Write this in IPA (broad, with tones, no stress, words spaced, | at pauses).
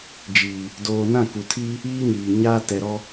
d͡ʒiː˨ | doː˦ nã˦˨ku˨tʰiː˦ | iː˦ɲiː˨ ɲaː˦ tɛ˨ɾɔ˦